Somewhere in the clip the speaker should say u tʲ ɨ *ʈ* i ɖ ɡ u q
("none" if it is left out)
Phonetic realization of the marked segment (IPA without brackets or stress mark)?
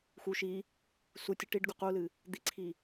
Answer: ʈ